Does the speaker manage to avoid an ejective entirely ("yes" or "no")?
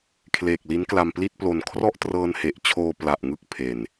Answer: yes